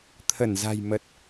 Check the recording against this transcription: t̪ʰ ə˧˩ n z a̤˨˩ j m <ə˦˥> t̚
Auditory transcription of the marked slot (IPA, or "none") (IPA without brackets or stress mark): ə˨˩